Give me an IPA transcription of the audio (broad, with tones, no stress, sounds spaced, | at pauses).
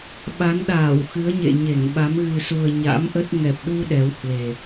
ɓ a˨˦ n ɗ aː˧˩ w x ɨ˨˦ ə̯ ɲ ḛ˧˨ ɲ e˧˩ ŋ ɓ a˨˦ m ɣ ɨ˨˩ s u˨˩ ə̯ ɲ a̰˧˥ m ʔ ə˦˥ t̚ ŋ ɛ˨˩ p̚ ɗ u˧ ɗ ɛ˨˦ w h w e˨˩